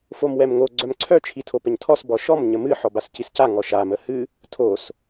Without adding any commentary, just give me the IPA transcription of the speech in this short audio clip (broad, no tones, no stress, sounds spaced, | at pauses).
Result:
f o m w ɛ m ŋ o ɡ͡ǀ œ m ǀʰ œ t͡ʃʰ i tʰ o p ə ɲ tʰ ɔ s b ɔ ʃ ɔ m ɲ ə m ɨ ħ ɔ b a s c i s c a ŋ ɔ ʃ a m ə h ɨ | tʰ o s